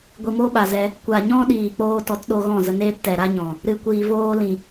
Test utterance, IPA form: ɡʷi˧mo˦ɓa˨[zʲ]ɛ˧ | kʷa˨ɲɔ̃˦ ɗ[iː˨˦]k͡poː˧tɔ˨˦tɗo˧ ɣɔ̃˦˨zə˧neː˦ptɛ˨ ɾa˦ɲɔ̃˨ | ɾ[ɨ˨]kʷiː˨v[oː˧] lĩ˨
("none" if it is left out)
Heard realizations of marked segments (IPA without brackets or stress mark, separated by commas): z, iː˨, ɨ˨, oː˧